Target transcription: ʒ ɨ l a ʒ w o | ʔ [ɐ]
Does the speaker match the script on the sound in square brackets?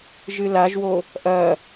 yes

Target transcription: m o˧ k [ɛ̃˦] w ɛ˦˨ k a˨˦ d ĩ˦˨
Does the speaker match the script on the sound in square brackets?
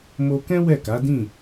yes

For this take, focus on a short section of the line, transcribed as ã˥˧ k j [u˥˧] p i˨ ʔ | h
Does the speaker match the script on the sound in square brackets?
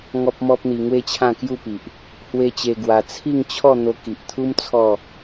yes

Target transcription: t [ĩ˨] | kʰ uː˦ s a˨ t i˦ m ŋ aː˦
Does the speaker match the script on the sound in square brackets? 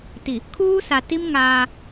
no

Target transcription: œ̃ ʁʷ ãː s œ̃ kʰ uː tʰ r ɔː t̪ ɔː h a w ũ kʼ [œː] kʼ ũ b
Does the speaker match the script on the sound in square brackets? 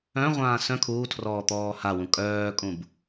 yes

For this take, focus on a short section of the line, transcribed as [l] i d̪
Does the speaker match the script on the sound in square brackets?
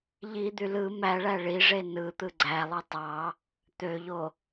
no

